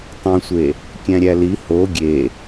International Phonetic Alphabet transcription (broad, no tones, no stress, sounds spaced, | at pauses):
tˤ õ sʷ e | kʲ æ̃ ɾʲ æ l i h o ɡʲ e